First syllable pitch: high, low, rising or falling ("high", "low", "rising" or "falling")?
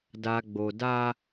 low